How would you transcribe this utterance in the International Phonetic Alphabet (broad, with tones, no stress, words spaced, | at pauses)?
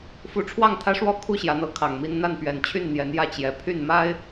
fu˨˦ʈ͡ʂʰwɑ˥˨ŋt̪ʰä˦ʂwɔ˥˨ kʰu˥˨ɕjä˨˦n̪ɤ˨˦ kʰɑ˨˩ŋmi˦n n̪a˥˨npɥɛ˨˩nt͡ɕʰy˥˨n n̪jɛ˨˦njä˥˨ t͡ɕjɛ˨˦ pʰy˥˨nma˦ɪ̯